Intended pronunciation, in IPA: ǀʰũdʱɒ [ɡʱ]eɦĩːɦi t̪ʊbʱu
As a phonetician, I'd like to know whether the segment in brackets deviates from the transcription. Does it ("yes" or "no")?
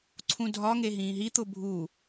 yes